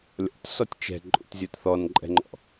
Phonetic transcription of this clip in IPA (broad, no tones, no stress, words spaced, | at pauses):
lʲɔ̰tsɔtʲ t͡ʃɛ̤ǃʼṵtzʲot θɔnǃʼɛ̤ŋ͡ǃɔ̰